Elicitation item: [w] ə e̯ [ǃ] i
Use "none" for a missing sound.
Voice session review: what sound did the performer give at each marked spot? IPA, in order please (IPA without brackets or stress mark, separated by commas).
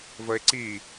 v, ǀ